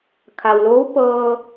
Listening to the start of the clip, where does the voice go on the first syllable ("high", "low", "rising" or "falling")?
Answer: low